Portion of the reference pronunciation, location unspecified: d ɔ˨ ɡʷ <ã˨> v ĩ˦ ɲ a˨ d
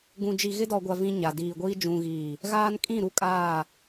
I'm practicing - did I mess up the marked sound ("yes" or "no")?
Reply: yes